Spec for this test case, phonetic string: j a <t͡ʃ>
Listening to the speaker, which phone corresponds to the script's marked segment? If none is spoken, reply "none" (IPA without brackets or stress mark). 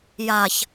ç